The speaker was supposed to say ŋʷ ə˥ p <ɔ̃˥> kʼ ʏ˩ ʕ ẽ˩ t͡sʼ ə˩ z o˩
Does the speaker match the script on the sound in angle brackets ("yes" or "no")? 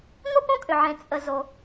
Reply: no